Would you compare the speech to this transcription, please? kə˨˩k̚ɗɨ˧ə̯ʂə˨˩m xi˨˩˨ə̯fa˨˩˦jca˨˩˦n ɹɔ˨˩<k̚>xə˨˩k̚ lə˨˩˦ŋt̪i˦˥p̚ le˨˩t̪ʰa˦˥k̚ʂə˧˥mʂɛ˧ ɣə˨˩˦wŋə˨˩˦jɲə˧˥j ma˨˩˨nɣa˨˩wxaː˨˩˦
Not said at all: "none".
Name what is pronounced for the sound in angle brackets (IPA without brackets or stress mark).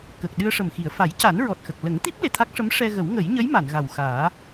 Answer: t̚